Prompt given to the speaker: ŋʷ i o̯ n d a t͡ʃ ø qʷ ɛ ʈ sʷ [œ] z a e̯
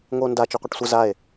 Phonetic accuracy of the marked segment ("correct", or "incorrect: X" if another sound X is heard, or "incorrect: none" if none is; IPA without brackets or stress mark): incorrect: ə